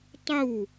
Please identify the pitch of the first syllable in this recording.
falling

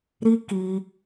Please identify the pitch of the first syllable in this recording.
high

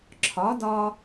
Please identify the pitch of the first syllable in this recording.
rising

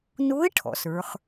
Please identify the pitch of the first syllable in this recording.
rising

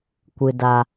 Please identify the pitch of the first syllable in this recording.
low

